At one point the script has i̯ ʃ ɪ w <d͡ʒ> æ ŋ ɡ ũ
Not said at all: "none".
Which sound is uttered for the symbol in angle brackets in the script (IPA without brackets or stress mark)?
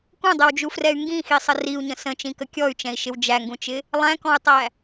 d͡ʒ